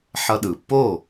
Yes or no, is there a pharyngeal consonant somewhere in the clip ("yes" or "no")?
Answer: yes